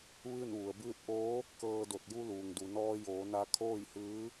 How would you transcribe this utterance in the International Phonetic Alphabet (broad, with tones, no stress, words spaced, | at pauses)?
ʋɯː˥˨n ʋu˩ə̯bɯː˥˨t̚ ʔoː˧˥ | kɤː˧do˧˩t̚ ju˧ luː˩ŋdu˩nɔː˧joː˩˧ na˩˧ kʰoː˥˨jhɯː˧˥